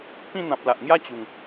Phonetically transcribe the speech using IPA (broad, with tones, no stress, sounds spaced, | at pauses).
p ĩ˥˧ n̪ ã˨ p̚ l a˨ ʔ ŋ j a˦ t͡ɕ u˨˩ ŋ